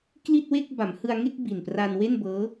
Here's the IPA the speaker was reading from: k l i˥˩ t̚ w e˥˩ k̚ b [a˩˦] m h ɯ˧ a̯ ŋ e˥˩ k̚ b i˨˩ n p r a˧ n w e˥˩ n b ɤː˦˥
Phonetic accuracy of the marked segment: correct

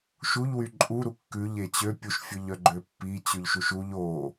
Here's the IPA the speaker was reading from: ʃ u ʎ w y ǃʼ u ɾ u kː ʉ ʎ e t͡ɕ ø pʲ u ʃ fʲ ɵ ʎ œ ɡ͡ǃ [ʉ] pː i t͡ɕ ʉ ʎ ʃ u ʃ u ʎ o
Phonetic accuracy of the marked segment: incorrect: ø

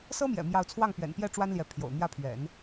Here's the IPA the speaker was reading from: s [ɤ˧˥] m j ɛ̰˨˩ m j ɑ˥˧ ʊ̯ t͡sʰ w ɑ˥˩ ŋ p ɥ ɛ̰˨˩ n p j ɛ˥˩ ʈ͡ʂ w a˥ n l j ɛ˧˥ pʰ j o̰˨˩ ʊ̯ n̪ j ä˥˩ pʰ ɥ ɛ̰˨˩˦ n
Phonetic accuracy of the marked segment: incorrect: ɤ˥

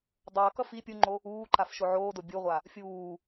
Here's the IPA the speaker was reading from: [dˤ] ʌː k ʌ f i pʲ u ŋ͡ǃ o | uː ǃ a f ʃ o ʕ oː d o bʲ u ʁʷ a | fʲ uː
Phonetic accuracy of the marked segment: correct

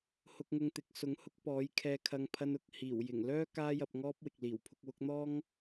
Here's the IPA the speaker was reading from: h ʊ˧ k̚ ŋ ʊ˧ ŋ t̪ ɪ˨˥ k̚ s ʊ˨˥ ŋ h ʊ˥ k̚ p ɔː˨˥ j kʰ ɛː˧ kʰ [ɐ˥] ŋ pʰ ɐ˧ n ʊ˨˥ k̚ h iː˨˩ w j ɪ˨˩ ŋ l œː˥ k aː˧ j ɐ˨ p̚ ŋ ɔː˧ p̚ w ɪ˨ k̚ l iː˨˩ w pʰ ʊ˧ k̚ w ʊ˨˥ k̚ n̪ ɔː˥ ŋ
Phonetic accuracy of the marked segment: incorrect: ɐ˧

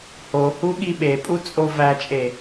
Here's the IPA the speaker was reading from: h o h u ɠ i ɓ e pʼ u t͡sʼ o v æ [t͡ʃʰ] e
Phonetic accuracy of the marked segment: incorrect: t͡ʃʼ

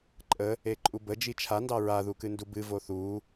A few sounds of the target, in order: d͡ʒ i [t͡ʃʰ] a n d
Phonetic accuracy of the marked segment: correct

